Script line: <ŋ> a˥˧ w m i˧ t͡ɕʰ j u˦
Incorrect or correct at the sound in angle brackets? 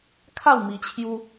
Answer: incorrect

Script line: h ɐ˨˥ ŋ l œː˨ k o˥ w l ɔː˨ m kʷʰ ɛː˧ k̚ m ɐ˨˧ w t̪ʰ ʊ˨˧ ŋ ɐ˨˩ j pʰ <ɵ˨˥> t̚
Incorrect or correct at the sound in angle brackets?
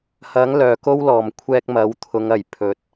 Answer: correct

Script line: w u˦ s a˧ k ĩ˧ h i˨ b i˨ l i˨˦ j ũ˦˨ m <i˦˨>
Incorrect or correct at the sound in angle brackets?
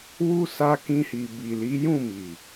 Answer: incorrect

